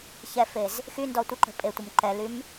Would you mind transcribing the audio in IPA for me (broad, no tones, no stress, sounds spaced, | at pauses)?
ç ɛ f e z | x y n d ɔ tʷ ə ǃ ə̤ pʼ e tʷ ə m ǃ ɛ l y m